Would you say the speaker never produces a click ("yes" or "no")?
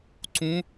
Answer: no